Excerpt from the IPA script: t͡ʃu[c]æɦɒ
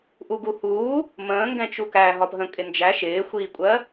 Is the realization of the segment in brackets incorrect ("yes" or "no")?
yes